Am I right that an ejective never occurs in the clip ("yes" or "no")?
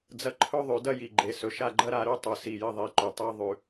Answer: yes